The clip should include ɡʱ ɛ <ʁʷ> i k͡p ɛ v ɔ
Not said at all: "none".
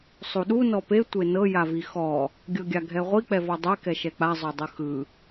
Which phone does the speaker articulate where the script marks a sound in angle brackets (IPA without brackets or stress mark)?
ʁʷ